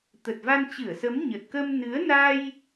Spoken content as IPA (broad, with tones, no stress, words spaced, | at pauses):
t̪ə˨˩t̚va˧nt͡ɕɨ˧˩ə̯sə˨˦m ɲə˨˩t̚kə˧mnɨ˨˦ə̯na˧j